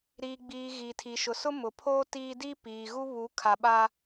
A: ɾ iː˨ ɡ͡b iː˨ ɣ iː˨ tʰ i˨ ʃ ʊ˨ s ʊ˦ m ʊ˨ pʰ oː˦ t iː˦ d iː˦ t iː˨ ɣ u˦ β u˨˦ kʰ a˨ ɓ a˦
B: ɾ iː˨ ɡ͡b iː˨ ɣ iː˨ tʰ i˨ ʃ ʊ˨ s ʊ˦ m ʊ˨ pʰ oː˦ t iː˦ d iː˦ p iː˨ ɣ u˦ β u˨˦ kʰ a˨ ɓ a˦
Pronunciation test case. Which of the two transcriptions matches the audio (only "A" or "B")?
B